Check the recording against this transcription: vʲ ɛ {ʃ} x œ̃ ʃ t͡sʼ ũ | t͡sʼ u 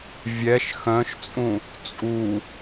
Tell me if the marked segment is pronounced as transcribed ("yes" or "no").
yes